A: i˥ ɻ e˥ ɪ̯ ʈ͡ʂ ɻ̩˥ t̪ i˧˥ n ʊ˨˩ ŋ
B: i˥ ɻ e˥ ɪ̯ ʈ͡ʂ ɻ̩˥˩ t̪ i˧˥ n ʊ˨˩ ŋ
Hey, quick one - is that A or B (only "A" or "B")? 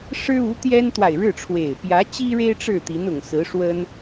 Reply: B